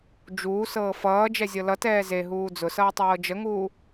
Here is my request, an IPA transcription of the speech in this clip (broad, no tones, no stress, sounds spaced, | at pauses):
d͡ʒ uː s ɤː f ʌː d͡ʒ ɛ zʲ ɤ l ʌ t ɛː z e ɦ uː d͡z ʊ s ʌː tˤ ɤː d͡ʒ ə ŋ uː